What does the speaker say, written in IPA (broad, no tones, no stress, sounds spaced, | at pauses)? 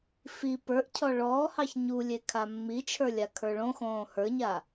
f i p ə˞ ʔ cʰ ɔ ɭ ɔː h ɑ ç ɲ u lʲ e kʰ a mː i t͡ʃʰ ə˞ lʲ a kʰ ə˞ ɭ õ x õː h ə˞ ɲ a